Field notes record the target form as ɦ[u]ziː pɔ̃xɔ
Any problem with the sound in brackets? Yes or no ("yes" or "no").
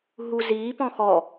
no